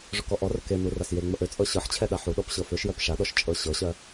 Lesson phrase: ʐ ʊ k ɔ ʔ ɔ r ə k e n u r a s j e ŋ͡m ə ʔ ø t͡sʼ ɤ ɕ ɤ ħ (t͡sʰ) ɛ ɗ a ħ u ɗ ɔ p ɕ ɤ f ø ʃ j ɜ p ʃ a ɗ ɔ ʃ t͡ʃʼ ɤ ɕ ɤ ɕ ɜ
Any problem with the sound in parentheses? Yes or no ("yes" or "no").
yes